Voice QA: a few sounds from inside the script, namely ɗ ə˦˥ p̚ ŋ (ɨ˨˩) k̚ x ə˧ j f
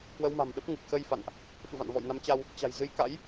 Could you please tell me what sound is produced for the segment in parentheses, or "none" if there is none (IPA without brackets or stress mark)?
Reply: ɨ˨˩